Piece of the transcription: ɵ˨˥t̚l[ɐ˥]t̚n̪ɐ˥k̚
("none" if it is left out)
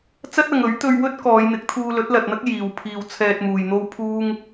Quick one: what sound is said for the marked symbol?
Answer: ɐ˨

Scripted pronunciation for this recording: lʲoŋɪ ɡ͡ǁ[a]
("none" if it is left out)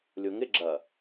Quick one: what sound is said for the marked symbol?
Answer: ɐ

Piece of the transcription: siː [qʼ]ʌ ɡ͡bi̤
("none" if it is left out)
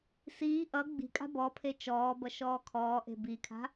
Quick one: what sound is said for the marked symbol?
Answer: ʔ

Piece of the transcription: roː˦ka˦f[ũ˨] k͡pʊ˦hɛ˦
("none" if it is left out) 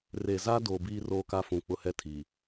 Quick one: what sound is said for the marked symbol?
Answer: ũ˨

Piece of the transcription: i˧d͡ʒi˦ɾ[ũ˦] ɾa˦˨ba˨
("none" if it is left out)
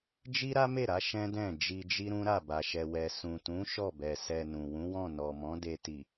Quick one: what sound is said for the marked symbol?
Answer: ũ˦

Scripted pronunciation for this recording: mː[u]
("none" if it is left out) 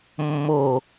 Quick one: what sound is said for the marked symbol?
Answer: o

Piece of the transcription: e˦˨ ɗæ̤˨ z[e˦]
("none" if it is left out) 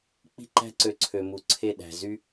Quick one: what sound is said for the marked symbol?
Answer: y˦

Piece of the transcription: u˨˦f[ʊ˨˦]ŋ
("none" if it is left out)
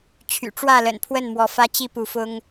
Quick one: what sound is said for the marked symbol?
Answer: ʊ˦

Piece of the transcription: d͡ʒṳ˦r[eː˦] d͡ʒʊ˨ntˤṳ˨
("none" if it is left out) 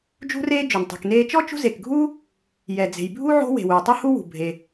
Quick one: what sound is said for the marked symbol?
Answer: eː˦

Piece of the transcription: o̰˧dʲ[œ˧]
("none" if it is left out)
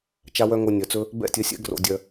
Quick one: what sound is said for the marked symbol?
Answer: œ˧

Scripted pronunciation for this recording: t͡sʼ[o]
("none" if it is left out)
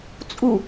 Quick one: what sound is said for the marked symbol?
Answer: u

